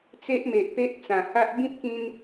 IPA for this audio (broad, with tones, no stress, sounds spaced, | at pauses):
t͡s e˦ ʔ m e˨ ʔ p e˦ ʔ t͡s ã˨˩ h a˦ ʔ b ĩ˦ p̚ k ĩ˧ n